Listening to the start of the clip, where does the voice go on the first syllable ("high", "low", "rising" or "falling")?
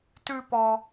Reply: high